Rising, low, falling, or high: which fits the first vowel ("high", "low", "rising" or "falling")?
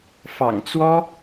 low